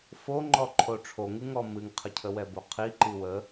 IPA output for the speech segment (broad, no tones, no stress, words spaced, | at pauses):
foŋ͡ǃɔ ǃʰoʈ͡ʂʰoŋɨŋɔ mɨŋqʰəcʰəwɛ boqʰi ǃiwə